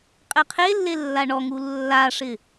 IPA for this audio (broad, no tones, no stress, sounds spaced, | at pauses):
qʼ ɛ qʰ e lː e lː a ɳ ɔ ŋ u lː a ʂ ɪ